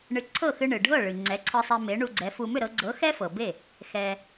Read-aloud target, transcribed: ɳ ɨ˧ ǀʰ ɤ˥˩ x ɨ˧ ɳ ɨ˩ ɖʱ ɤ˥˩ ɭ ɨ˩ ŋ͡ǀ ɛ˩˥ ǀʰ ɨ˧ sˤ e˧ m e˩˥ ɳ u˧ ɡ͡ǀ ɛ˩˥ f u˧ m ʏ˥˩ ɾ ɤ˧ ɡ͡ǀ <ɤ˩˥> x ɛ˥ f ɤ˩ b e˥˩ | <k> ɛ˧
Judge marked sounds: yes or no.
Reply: yes, no

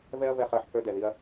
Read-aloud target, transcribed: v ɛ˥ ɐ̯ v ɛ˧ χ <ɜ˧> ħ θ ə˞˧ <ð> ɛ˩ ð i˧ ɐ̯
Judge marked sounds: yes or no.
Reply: yes, no

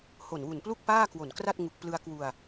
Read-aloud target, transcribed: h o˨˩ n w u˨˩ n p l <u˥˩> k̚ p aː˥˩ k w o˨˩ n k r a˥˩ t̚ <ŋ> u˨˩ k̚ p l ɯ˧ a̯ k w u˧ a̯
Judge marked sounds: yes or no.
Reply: yes, yes

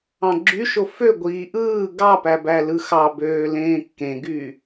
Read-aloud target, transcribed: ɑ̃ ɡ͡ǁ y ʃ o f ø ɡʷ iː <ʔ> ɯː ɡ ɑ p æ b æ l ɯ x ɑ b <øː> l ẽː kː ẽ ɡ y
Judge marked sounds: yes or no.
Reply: yes, yes

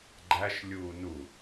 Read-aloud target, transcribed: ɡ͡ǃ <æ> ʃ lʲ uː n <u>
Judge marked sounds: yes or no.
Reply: yes, yes

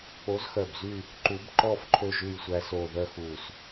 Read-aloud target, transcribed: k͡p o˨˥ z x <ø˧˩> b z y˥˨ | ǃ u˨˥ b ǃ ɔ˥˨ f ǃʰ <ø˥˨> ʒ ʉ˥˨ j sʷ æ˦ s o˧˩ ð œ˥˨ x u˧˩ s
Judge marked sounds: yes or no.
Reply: no, yes

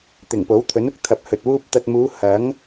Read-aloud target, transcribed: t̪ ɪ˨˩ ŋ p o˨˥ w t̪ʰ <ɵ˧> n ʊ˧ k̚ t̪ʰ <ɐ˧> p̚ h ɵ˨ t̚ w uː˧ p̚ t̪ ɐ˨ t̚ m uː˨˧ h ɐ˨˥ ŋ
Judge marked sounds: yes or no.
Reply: no, yes

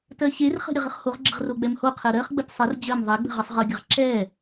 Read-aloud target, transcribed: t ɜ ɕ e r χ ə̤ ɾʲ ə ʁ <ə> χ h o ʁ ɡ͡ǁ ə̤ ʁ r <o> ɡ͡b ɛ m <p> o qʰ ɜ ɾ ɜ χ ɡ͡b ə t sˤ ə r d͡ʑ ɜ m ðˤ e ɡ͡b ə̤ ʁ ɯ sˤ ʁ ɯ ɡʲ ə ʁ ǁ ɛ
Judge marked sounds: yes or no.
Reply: yes, yes, no

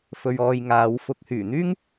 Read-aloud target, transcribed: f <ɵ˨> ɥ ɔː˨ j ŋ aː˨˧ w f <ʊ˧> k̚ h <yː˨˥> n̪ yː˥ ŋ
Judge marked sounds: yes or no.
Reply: yes, yes, no

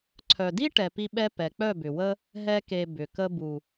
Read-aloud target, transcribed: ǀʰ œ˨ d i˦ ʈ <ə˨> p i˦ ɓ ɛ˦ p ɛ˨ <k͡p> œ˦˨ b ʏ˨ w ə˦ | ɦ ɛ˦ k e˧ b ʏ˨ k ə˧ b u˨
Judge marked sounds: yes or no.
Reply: no, yes

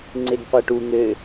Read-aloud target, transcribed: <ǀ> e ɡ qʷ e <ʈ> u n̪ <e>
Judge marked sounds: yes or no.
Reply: no, yes, no

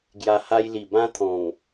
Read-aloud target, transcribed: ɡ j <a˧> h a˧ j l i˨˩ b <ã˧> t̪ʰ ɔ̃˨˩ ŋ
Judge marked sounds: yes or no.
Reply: yes, no

